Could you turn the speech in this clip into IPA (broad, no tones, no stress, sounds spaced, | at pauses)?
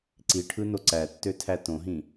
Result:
ǀ i ʈʰ ɯ n o ǀ æ tː ø tʰ æ t õ ɦ ĩ